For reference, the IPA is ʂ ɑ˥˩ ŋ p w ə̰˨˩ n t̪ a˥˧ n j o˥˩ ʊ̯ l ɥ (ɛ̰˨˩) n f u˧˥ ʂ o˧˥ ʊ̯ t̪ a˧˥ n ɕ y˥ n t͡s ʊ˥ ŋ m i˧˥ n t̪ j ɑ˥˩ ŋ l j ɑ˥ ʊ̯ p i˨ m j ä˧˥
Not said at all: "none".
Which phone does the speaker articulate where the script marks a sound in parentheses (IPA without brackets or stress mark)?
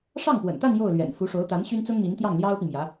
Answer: ɛ̰˨˩